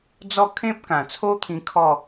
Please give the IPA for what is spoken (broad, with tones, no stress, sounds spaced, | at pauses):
d͡z ɔ˥˧ kʰ ẽ˦ p̚ k ã˨˩ t͡sʰ o˦ t̪ʰ ĩ˧ kʰ ɔ˥˧